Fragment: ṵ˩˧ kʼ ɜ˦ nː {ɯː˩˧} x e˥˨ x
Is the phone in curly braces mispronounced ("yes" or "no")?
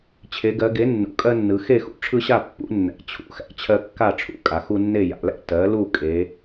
yes